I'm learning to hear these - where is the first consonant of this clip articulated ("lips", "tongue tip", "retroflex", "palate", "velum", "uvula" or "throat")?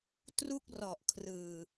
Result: tongue tip